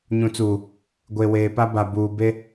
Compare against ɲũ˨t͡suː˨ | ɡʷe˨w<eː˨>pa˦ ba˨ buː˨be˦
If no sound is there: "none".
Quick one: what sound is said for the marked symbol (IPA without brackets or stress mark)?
eː˨